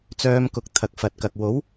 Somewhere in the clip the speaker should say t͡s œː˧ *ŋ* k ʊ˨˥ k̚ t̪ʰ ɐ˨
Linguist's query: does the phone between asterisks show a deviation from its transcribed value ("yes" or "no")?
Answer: yes